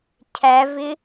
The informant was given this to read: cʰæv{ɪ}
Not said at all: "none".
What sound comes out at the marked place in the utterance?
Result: ɪ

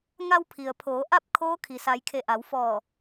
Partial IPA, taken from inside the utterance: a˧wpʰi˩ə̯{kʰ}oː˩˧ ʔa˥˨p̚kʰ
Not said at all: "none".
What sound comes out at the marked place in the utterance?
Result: pʰ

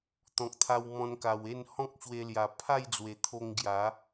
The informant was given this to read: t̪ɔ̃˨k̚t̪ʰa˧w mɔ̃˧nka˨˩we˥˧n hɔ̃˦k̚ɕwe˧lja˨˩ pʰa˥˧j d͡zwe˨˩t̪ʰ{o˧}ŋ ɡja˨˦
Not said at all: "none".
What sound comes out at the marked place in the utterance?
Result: o˧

